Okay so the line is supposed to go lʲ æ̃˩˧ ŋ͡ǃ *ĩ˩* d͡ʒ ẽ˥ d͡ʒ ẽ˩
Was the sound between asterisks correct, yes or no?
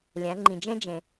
yes